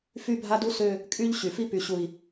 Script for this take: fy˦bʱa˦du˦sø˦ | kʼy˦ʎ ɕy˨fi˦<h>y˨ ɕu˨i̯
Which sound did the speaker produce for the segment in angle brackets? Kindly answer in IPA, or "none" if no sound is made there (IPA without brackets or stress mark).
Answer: p